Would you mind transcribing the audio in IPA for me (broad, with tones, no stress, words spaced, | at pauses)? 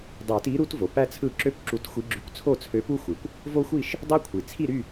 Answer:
dˤe˨˩˦ti˨˦ ɾu˦t vo˩pæ˦t͡sʰɯ˦˨ ǁø˦˨p ǁu˨˦txʷi˨˦ɡ͡ǁy˨˩˦kʷ t͡sʰo˦˨t͡sʰø˨˦pu˦xʷi˩kʷ | vo˦xʷi˦˨ʃ | dˤø˦kʷʰi˩ t͡sʰi˦˨ɾy˦˨